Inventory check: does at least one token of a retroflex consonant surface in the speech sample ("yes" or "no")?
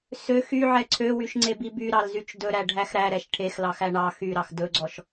yes